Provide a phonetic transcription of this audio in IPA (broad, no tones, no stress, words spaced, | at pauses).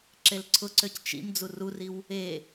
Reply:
ǁelǀʰʊǀøc t͡ʃḭm d͡zururiw | e